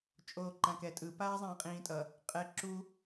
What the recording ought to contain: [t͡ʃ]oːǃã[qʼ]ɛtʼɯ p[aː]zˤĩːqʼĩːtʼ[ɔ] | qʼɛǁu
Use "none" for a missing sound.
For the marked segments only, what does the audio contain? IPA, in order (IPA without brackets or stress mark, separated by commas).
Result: t͡ʃʼ, k, aː, ʌ